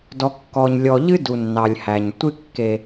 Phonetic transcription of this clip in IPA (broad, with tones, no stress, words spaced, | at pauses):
dɔ˨kːɔ˨ɲ lʲɔ˨ʎɨ˦ du˨nːɑ˨lʲhæ˨ɲtʷɨ˦ kːe˦